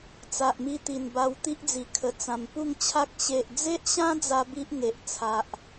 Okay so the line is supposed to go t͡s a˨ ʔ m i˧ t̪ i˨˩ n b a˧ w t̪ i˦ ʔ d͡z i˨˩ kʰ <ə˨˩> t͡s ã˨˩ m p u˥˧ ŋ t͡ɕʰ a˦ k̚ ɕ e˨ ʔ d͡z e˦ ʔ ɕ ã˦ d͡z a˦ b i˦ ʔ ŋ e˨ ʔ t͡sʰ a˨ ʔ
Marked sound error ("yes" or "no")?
no